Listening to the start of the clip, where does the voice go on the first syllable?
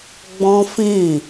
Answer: high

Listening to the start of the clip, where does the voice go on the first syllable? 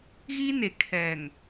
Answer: high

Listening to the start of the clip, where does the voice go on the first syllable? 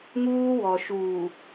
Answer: high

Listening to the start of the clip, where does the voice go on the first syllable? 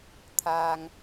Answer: low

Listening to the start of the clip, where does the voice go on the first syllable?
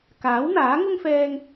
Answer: rising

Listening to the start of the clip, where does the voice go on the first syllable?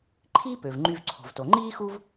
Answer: high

